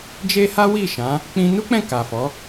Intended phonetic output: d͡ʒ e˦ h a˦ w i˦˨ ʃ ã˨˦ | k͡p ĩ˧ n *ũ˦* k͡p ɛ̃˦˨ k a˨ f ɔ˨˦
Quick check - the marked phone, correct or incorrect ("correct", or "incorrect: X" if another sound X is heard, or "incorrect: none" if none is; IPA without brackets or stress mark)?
incorrect: u˦